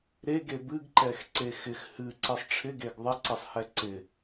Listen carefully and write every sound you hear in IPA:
ɾeɡe bɨɡǃɛxǀe xɪx hɨǀɨsˤ ʈ͡ʂʰɪɡeɡ ðˤɪǀɨsˤhɛ ǀɪ

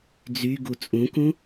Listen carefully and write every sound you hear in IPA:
d͡zyɡu t͡sʼũkũ

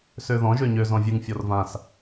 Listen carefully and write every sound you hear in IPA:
søðɔ̃ ʒøɲø zɔ̃vʲɨŋ fʲɔrvãs

